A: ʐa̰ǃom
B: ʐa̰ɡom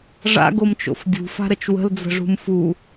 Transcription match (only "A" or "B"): B